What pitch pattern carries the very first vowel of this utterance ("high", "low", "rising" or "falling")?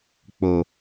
low